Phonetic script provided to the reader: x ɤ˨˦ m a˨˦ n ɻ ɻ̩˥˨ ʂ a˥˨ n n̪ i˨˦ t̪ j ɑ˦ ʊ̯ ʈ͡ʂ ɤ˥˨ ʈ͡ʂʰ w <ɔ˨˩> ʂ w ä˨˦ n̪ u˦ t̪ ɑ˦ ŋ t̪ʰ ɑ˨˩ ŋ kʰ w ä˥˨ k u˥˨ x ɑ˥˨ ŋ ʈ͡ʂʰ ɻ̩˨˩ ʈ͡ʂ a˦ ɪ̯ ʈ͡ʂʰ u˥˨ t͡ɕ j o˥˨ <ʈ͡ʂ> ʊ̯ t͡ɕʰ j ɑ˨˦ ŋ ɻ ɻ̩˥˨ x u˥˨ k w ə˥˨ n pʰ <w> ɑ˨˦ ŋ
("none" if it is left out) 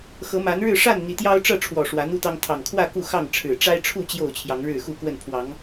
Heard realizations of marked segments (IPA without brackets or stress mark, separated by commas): ɔ˨˩, none, w